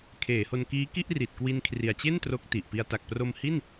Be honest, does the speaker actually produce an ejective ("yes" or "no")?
no